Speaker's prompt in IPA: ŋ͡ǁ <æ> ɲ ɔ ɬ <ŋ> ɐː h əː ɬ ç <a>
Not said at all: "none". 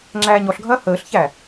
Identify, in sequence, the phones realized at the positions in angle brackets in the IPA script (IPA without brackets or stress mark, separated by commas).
æː, ɡʱ, æ